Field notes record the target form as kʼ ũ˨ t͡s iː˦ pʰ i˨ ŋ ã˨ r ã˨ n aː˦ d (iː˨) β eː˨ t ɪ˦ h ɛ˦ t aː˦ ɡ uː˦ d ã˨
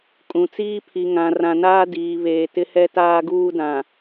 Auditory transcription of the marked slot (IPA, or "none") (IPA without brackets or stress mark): iː˨